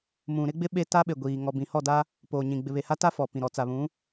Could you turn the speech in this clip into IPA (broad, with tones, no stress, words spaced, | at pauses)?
mũ˨ɾɪ˦ɡ͡bɪ˦ ɓe˦ ta˦ɓe˨ɡʷiː˨ ŋɔ˨bĩ˨hɔ˦˨da˦ | poː˨ɲĩ˨ ɡ͡bɪ˨βe˨ha˦ta˦ fɔ˨ pĩ˨ɾɔ˨ t͡sa˨βũ˨˦